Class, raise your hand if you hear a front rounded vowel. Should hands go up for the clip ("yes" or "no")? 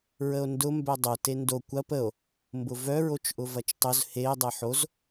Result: yes